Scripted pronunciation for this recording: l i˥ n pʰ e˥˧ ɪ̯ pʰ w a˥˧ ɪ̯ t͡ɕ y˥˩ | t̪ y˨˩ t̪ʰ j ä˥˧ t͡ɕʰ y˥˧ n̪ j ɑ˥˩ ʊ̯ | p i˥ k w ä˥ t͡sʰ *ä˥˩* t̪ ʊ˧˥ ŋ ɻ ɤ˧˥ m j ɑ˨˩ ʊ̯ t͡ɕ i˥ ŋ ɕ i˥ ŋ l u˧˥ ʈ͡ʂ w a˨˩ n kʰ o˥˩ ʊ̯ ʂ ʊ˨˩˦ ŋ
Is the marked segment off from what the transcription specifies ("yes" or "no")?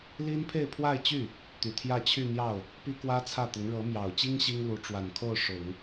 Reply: no